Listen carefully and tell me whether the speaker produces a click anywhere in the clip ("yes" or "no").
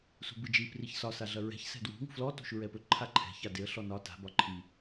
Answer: yes